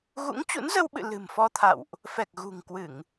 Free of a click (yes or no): yes